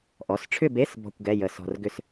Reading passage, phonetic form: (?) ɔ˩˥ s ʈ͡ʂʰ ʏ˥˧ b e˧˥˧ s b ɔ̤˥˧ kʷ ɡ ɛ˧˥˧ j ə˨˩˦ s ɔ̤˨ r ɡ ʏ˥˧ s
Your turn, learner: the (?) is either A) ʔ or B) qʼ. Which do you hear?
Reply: A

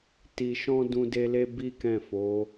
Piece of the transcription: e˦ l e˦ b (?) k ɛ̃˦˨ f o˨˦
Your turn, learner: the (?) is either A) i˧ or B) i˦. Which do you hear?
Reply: B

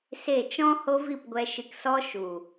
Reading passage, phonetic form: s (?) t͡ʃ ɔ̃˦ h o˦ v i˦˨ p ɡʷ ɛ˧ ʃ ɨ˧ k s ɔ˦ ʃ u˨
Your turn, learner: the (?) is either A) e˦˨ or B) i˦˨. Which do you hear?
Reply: A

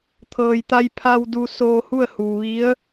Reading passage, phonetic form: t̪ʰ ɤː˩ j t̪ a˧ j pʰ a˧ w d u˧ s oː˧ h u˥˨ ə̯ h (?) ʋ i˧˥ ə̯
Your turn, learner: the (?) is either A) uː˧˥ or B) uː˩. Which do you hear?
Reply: B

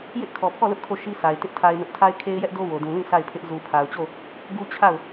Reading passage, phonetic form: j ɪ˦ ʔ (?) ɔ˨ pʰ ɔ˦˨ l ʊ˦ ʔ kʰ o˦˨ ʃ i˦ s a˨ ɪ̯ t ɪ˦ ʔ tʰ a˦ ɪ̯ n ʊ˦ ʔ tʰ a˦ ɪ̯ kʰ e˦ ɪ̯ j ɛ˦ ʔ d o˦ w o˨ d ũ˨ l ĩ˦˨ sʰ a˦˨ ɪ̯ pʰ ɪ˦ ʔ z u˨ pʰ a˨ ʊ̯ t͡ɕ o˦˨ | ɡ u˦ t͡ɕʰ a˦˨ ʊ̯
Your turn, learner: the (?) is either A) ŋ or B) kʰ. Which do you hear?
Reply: B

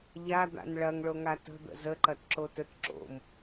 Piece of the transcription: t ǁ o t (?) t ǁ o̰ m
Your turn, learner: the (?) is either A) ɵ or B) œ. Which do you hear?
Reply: A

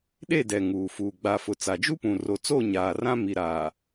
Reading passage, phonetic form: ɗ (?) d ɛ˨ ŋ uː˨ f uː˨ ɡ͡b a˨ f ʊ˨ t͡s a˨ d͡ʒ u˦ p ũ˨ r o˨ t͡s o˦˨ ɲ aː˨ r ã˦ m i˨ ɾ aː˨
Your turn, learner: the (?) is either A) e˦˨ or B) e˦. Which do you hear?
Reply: A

